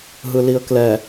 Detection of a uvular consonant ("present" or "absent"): absent